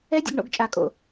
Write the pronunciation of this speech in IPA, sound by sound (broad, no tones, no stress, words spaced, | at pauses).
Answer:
ɛdʲə̰ɡɳo̰ɡ t͡ʃʼakʼo̰